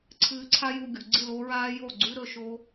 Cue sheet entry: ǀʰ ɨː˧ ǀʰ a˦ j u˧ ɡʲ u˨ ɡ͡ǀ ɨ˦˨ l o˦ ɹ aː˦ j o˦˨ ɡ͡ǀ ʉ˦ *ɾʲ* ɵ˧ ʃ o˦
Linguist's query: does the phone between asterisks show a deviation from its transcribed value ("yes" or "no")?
yes